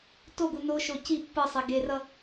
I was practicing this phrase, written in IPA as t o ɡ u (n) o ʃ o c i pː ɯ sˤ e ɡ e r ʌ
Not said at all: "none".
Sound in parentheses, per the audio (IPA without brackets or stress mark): n